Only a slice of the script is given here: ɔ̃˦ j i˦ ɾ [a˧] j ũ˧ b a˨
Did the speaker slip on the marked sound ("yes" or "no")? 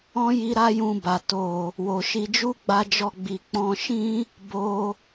yes